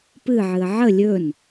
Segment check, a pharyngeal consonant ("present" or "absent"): present